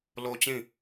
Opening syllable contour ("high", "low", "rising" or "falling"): high